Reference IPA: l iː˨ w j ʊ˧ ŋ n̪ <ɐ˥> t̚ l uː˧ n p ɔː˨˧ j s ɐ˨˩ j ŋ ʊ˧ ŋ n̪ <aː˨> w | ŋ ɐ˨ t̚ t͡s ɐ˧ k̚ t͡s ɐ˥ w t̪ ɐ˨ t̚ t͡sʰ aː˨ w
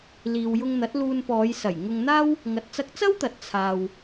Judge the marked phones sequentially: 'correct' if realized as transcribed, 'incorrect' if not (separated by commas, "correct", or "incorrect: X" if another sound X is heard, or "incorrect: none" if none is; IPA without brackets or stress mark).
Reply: incorrect: ɐ˨˥, incorrect: aː˥